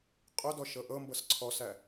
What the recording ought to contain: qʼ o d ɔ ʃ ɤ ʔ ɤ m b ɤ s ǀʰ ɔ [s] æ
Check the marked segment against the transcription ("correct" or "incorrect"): correct